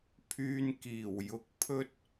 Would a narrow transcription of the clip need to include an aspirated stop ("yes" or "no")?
yes